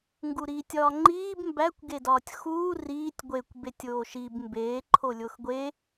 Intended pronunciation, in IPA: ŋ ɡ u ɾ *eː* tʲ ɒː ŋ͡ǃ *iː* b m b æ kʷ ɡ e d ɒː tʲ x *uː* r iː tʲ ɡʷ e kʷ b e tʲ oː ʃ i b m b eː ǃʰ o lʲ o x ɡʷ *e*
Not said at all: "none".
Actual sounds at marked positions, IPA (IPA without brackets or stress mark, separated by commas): iː, iː, uː, e